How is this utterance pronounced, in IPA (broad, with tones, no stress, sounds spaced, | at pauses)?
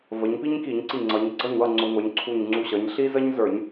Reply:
v ə˩˧ ɲ p i˦ ɲ k i˧˩˧ ɲ ǀ i˧˩ ŋ͡ǀ ʌ˩˧ ɲ ɡ͡ǀ ʌ˥˩ ɲ w ʌ˥˩ ŋ͡ǀ ʊ˧˩˧ ŋʷ ə˞˩˧ ɲ ǀʰ u˧˩ ɲ ŋ͡ǀ u˧˩ ɕ ʌ˩˧ ɲ ɬ i˦ z ə˦ ɲ z ə˞˧˩˧ ɲ